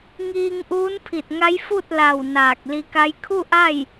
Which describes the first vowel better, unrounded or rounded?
unrounded